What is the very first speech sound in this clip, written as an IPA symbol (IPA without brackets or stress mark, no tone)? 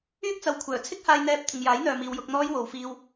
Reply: yː